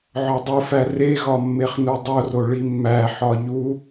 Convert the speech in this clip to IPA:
ʕ ɒ dˤ u f æ r e ɣ ɒ mː e χ n u dˤ o r o ɭ i mː æ ħ ɒ ʎ u

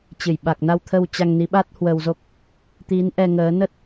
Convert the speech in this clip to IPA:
t͡ɕ ɨ˧˩ j ɓ a˨˩ k̚ n a˧ w t̪ʰ ə˧ w t͡ɕ a˧ ŋ n i˨˦ ɓ a˦˥ t̚ h w ə˧ w z o˦˥ k̚ | t̪ i˨˦ n ʔ ɛ˧ ŋ əː˨˦ n ə˦˥ t̚

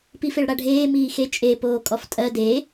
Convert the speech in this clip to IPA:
p i f e ɭ ɽ a ɖʱ eː m iː x e t͡ʃʼ e p oː kʼ ɔ f tʼ ɜ d e

